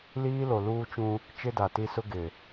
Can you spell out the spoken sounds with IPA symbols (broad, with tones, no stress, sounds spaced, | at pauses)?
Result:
l iː˦ l o˨ l uː˦ t͡ʃ ũ˦ | t͡ʃ ɪ˦ d a˨ t i˦ s ʊ˦ ɡ ɪ˨